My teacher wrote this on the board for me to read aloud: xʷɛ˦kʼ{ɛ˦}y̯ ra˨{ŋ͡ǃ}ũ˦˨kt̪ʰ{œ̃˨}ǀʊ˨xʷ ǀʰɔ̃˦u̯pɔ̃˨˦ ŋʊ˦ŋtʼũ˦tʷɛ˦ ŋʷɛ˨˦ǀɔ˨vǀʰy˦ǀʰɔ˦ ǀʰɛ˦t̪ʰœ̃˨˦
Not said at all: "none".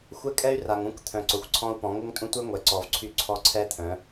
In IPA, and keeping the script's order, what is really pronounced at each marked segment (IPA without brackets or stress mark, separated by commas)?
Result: ɛ˦, ŋ, œ̃˨